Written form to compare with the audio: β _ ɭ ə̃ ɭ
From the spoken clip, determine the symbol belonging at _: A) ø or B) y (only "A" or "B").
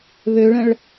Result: A